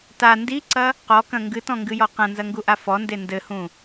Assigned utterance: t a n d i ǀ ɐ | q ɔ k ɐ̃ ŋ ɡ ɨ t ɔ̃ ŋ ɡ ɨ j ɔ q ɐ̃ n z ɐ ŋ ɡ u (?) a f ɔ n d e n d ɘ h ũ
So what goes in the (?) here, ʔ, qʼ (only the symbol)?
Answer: ʔ